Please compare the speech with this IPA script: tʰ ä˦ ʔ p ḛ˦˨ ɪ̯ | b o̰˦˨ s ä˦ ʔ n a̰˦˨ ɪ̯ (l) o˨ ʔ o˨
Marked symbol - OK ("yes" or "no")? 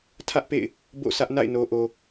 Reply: no